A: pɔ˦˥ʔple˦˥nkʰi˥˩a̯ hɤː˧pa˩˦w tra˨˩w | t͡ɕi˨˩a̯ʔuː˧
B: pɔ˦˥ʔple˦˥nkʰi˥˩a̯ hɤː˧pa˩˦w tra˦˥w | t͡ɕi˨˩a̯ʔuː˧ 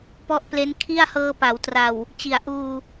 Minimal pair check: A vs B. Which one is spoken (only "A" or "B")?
A